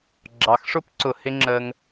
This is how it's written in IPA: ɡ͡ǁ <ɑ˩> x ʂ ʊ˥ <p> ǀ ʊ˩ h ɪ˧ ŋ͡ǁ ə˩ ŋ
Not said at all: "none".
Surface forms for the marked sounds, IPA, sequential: ɑ˩, p

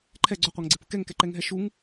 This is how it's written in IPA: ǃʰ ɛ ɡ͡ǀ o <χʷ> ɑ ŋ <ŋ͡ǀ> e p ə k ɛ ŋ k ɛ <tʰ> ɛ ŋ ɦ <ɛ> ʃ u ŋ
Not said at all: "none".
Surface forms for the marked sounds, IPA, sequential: qʷ, ɡ͡ǀ, ǃ, ɛ

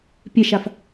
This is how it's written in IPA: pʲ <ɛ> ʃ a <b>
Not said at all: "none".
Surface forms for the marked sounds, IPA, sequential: ɛ, f

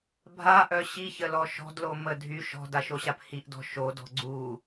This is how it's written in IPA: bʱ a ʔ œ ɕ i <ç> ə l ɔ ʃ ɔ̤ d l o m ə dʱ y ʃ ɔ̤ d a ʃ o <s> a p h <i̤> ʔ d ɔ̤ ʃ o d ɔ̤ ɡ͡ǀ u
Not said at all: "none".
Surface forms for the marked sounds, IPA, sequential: ç, ɕ, i

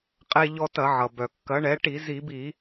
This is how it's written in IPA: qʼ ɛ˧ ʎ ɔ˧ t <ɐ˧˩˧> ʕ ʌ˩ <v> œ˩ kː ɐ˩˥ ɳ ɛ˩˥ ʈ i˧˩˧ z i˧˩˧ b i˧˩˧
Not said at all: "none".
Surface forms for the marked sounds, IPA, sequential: ɐ˧˩˧, b

